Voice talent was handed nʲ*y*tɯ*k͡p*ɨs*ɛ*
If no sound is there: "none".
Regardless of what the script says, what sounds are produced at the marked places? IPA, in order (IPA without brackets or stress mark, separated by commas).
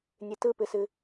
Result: ɨ, p, ɨ